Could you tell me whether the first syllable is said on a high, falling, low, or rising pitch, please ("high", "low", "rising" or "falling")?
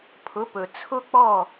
rising